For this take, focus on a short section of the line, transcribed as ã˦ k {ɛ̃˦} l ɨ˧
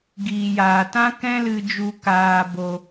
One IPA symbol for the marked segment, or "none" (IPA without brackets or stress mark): ɛ̃˦